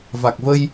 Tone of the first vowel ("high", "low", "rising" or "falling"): low